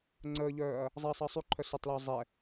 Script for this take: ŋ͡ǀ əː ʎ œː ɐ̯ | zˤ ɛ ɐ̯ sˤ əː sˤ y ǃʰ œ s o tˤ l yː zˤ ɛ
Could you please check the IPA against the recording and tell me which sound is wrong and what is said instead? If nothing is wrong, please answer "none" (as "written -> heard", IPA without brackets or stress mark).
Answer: none